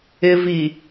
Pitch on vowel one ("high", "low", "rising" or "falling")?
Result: low